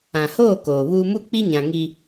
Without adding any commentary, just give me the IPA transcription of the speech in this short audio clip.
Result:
ã˨ h oː˦˨ k oː˨ β uː˦ m u˦ k͡p i˦ ɲ ã˨ ŋ i˦

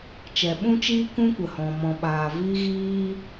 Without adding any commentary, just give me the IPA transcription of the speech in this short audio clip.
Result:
t͡ʃ ɛ˨ ɓ ũ˦ t͡ʃ iː˦ k ũ˧ kʷ ə˨ h ɔ̃˨ m ɔ̃˨ ɓ aː˨ v i˧ ɣ iː˧

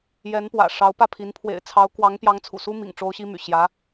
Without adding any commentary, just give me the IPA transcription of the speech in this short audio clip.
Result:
j ɛ˧˥ n p w ä̰˨˩ ʂ ɑ˧˥ ʊ̯ p ä˥˩ pʰ i˧˥ n pʰ w ḛ˨˩ ɪ̯ t͡sʰ ɑ˧˥ ʊ̯ k w ɑ˧˥ ŋ p j ɑ˧˥ ŋ t͡sʰ ṵ˨˩ s u˥ m ḭ˨˩ ŋ ʈ͡ʂ o˥ ʊ̯ ɕ i˥ m y̰˨˩ ɕ j ä˧˥

